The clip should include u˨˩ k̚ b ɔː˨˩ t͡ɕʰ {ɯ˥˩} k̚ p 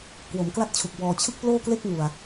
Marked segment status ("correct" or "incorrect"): correct